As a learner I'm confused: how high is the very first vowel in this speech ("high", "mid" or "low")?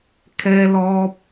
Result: mid